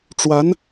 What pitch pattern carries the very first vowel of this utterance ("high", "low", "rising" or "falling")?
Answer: rising